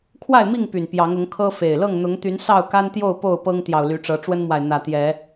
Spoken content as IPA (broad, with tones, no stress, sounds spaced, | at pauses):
kʰ w a˥˨ ɪ̯ m i˥˨ ŋ p y˨˩ n p j ɑ˨˦ ŋ ʊ˨˦ ŋ kʰ ɤ˦ f e˨˩ ɪ̯ l ɤ˥˨ ŋ n̪ ʊ˨˦ ŋ t̪ y˨˦ n s ɑ˥˨ ʊ̯ k a˦ n t̪ j o˥˨ ʊ̯ p o˥˨ ʊ̯ p ɤ˦ ŋ t̪ j ɑ˨ ʊ̯ l y˨˦ ʈ͡ʂ ɤ˨˦ ʈ͡ʂ w ə˦ n m w a˨ ɪ̯ n̪ ä˨˩ t̪ j ɛ˨˦